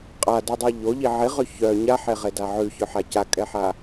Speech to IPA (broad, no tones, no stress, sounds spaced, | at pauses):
qʼ a d e dˤ i ʎ o ʎ i ʕ i ʁ ø ç œ ɲ a ħ e ʁ e d a ʕ ʉ ç œ ħ a c a kʼ ɛ ħ a